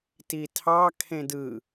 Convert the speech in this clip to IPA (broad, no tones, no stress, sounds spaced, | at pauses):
t i tʰ ɑ kʰ ẽ d ɯ